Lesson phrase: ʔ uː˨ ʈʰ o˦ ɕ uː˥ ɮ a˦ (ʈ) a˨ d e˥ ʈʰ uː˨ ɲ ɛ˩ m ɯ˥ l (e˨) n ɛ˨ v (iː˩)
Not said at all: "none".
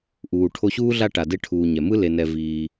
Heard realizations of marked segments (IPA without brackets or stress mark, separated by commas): ʈ, e˨, iː˨